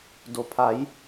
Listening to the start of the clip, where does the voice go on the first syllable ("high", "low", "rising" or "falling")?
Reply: low